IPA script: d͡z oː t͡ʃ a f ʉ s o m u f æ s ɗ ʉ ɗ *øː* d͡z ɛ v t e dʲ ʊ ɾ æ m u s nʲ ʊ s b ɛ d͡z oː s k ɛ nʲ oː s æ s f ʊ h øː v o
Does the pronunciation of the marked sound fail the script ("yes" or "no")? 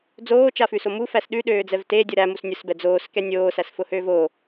no